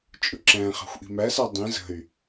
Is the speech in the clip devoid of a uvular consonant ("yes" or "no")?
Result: no